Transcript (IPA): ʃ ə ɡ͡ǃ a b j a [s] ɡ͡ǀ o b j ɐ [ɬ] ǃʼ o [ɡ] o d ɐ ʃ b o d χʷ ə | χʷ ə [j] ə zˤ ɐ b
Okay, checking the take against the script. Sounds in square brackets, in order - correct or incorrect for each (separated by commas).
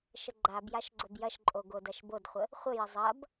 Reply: incorrect, incorrect, correct, correct